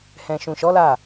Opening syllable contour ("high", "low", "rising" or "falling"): low